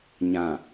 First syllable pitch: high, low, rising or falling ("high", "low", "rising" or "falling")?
low